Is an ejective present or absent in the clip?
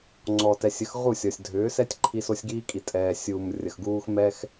present